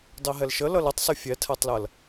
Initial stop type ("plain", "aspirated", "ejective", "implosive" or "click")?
plain